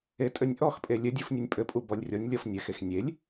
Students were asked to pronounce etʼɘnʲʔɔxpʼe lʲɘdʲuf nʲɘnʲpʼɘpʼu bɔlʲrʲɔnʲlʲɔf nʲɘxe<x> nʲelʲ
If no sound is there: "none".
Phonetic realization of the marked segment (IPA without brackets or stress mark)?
x